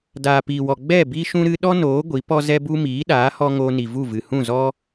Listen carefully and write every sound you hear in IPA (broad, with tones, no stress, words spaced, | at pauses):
daː˨piː˨wɔ˨ ɡ͡bɛ˦˨ bi˦ʃũ˦ɾɨ˦ ɗɔ˦noː˨˦ ɡʷi˨˦pɔ˦zɛ˦bu˦ miː˨˦ɗaː˨˦hɔ˧ ŋoː˧ni˨vu˦˨ vɨ˨ hũ˦˨zɔ˦